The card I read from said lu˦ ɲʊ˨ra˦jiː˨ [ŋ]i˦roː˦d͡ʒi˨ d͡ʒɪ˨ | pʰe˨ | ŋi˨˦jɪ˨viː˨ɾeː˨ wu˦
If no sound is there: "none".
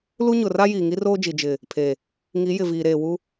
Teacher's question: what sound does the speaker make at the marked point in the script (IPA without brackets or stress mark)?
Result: ŋ